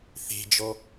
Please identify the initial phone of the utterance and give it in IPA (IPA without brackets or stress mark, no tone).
θ